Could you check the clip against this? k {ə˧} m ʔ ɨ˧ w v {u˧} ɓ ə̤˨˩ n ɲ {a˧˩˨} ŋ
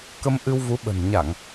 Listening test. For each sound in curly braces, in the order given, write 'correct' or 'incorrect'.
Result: correct, incorrect, correct

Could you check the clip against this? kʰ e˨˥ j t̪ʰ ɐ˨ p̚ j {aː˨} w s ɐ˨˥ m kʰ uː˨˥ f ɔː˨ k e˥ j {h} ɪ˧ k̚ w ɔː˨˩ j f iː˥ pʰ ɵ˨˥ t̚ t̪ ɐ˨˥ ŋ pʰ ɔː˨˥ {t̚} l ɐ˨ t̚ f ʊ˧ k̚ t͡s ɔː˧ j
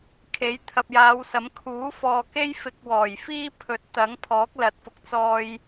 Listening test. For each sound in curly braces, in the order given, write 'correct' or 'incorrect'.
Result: incorrect, incorrect, incorrect

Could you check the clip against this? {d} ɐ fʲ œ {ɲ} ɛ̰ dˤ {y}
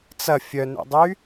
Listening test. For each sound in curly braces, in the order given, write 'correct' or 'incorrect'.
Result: incorrect, incorrect, correct

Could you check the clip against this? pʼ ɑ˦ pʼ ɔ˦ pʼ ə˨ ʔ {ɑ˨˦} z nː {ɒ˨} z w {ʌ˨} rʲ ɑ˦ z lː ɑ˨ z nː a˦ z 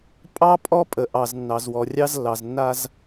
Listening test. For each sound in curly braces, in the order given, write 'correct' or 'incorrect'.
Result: incorrect, incorrect, incorrect

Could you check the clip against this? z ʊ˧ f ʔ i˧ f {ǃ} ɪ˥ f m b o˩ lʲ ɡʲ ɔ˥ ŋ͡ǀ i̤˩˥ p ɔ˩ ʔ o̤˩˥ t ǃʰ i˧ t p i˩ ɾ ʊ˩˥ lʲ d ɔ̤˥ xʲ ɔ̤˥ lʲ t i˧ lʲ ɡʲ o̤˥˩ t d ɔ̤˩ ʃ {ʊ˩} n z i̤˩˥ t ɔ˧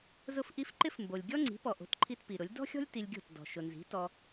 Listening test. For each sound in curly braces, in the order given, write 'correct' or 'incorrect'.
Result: correct, correct

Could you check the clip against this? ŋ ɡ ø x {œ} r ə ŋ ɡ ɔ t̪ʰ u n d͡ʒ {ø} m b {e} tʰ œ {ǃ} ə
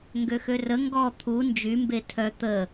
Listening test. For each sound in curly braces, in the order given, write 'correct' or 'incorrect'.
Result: incorrect, incorrect, correct, incorrect

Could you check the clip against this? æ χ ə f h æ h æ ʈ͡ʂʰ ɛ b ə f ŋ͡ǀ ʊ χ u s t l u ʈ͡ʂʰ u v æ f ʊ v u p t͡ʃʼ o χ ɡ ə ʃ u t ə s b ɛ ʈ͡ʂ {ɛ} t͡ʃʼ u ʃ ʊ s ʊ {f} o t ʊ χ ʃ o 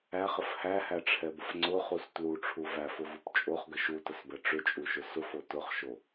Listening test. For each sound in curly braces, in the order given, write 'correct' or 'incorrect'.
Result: incorrect, correct

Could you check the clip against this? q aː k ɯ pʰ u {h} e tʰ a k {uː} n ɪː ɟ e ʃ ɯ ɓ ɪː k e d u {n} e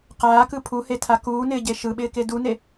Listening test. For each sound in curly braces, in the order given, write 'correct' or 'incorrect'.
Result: correct, correct, correct

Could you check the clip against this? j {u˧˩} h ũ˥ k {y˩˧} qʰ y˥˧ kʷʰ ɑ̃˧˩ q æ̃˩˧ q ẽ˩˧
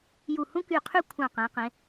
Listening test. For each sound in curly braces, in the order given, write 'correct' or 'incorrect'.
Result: correct, incorrect

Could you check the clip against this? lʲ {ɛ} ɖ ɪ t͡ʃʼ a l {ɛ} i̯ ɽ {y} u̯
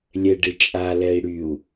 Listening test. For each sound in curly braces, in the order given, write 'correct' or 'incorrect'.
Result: correct, correct, correct

